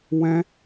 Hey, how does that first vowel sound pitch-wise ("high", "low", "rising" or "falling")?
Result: high